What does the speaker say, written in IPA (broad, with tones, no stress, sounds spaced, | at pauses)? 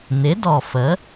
n̪ ɪ˩˥ d ɔ˨˩ f ə˩˥